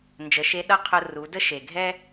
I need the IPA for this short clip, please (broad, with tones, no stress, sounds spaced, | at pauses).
n d͡ʒ ə˩˧ ʃ e˧˥ ɗ ʌ˥ qʰ ʊ˧ r u˩˧ d ə˥ ʃ e˩ ɡʱ ɛ˥